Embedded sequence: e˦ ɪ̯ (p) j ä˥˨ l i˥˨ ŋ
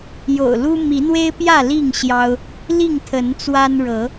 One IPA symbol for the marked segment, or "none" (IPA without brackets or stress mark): p